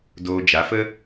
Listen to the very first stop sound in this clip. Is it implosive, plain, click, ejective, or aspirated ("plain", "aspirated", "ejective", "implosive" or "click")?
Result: plain